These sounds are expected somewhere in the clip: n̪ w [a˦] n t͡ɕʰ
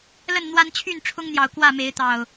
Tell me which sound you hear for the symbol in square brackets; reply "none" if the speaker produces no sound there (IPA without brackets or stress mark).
a˦